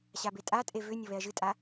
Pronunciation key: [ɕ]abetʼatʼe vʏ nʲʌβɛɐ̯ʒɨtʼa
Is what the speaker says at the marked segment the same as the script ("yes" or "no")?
yes